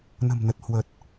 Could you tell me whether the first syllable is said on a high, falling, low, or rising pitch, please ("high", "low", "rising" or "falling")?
low